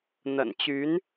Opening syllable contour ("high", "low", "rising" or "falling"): low